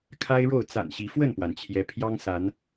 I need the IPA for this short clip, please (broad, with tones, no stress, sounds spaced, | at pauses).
kʰ a˦ ɪ̯ ɻ o˥˨ ʊ̯ t͡s a̰˨˩ n ɕ i˨˦ f w ə˥˨ n p w a˩ n t͡ɕʰ j ɛ˦ pʰ j ɑ˦ ŋ s a˨˦ n